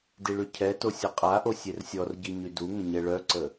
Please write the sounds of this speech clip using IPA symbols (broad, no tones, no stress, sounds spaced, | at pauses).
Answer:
d i ɭ y cʰ ɛ t o sʲ ə qʼ a ʔ o sʲ e r sʲ ɔ r ɟ i ɲ y d u ŋ ə̃ ɲ ɛ ɭ œ ǀ ə